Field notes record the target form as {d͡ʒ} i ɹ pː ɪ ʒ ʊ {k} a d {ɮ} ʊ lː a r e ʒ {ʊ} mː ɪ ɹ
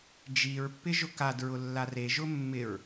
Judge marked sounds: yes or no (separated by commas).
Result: yes, yes, no, yes